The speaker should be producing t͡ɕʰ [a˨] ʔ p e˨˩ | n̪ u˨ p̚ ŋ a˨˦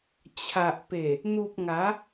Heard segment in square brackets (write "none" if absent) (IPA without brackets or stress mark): a˨